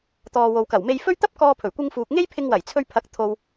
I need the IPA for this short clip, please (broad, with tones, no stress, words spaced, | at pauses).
t̪ɔː˨wo˨wkɐ˨˩wme˧j fɵ˥ɥ t̪ɐ˥p̚kɔː˧ pʰɵ˨˩ɥkʷɪ˧ŋfuː˨k̚ ŋe˥jpʰɪ˧ŋwɐ˨˩j t͡sʰɵ˧ɥpʰɐ˨˥k̚t̪ʰo˨w